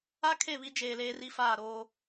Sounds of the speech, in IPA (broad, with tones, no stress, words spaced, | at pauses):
a˦ kʰe˦˨βi˦d͡ʒeː˨ leː˦ri˦faː˦˨ɾoː˦